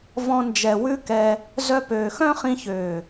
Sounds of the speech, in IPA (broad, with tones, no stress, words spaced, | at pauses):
vɔ̃˧ nd͡ʒɛ˨wʉ˦kɛ˧ | zœ˧pøː˨xœ̃˦ χĩ˧çøː˨